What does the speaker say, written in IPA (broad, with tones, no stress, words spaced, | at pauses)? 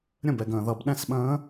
ɾʲə̃˥˩bɛ˨ɡə̃ː˨ ðʌ˨b ɗɛ̃˥˩sɓə̃ː˧˥